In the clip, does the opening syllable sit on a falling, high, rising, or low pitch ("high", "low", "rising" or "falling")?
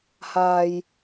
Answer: low